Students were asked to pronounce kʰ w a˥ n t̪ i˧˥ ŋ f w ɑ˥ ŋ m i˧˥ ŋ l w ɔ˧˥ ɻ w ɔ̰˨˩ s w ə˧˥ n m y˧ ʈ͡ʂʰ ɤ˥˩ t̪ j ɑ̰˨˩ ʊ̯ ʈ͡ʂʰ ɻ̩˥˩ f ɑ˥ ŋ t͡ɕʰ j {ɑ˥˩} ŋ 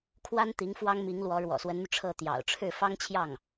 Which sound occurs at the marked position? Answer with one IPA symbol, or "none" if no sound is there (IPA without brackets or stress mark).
ɑ˥˩